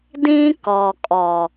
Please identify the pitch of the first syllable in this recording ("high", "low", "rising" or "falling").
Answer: high